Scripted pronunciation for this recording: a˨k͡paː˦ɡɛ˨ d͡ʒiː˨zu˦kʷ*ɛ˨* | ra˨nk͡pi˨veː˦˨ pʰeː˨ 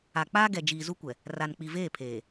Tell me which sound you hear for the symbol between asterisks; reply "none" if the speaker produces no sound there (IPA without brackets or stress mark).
ɛ˨